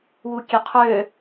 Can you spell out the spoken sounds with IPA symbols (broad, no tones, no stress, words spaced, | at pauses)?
wukʲøqʰø